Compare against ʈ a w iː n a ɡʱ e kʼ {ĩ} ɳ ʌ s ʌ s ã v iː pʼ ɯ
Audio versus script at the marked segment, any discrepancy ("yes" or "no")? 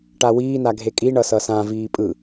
yes